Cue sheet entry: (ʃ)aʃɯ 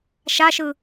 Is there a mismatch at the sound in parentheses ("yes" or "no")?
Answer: no